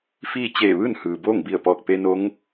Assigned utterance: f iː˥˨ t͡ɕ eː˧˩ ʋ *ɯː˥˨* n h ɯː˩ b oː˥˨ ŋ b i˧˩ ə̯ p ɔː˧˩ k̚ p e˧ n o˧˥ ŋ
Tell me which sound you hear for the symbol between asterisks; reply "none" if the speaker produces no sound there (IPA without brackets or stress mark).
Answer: ɯː˥˨